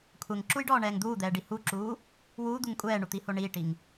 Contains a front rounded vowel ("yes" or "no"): no